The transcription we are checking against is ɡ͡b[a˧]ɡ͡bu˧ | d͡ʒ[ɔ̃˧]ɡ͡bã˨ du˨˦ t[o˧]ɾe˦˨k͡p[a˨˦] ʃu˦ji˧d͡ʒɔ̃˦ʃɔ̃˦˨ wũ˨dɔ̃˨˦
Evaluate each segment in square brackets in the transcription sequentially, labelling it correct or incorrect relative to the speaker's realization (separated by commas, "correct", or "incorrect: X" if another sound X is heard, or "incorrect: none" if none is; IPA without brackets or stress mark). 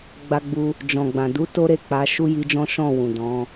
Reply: correct, incorrect: ɔ̃˨, incorrect: o˦, correct